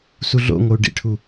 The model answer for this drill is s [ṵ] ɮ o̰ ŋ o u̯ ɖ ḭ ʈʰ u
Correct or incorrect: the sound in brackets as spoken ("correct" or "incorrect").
incorrect